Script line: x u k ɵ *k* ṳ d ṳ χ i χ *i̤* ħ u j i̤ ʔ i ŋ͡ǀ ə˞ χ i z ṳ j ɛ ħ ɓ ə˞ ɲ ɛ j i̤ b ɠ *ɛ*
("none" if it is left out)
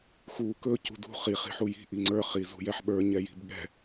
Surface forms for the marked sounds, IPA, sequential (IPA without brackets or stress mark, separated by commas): c, i̤, ɛ̤